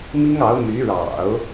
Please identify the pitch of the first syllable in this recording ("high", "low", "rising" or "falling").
high